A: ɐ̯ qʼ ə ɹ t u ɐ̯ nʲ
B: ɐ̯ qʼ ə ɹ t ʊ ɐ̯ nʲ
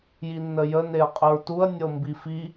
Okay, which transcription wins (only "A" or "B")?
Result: A